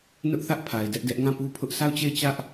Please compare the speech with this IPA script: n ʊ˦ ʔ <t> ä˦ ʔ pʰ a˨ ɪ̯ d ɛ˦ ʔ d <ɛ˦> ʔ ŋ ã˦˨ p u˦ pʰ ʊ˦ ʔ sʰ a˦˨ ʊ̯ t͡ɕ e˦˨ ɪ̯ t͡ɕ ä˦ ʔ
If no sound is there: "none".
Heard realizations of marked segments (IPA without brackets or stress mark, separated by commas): θ, ɛ˦